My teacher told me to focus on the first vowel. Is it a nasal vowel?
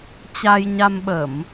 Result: no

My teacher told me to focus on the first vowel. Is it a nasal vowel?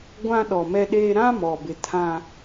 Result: yes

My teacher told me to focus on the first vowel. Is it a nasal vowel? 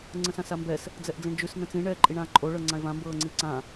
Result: yes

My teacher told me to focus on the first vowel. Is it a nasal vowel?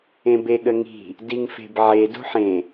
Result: yes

